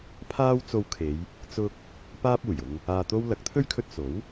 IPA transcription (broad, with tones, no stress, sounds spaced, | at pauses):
pʰ aː˥ w t͡s o˧ w kʰ e˨˧ j | t͡s ʊ˥ k̚ | p aː˥ p̚ uː˨˩ j ʊ˧ ŋ | aː˧ t̪ o˥ w l ɐ˨˥ k̚ t̪ʰ ɵ˥ ɥ kʰ ɵ˧ t̚ s o˨˥ w